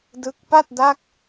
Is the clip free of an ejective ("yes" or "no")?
yes